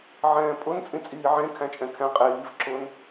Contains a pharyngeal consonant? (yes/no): yes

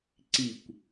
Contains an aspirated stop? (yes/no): no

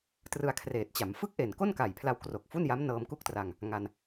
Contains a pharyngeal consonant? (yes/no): no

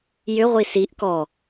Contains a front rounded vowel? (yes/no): yes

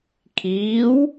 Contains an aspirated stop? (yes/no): yes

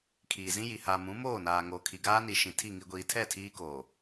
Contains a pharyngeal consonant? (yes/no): no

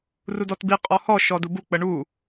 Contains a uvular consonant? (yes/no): yes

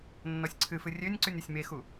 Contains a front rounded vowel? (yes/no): yes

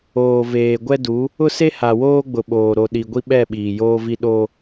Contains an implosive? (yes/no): yes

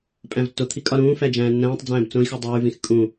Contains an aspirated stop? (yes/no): yes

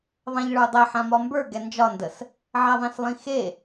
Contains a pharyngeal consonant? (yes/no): yes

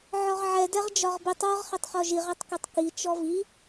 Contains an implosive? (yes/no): no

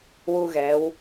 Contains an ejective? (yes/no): no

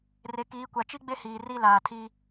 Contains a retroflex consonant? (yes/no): no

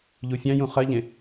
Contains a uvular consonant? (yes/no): yes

